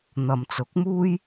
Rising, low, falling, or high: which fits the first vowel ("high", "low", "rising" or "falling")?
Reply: low